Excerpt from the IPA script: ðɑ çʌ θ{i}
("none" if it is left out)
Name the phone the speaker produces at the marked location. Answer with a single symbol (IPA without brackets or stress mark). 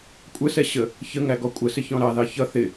ɪ